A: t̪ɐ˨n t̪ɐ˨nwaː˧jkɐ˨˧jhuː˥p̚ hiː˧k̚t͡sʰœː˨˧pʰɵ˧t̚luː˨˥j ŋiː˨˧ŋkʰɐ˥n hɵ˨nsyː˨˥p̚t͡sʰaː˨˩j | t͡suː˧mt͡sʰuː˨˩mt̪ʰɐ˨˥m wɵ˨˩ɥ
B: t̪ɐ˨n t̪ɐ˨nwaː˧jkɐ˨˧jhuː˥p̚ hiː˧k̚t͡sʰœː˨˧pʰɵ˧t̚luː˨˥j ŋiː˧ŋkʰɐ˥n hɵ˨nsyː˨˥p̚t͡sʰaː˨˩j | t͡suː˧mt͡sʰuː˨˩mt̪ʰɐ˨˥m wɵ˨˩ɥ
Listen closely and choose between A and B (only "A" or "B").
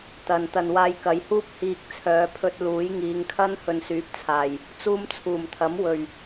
A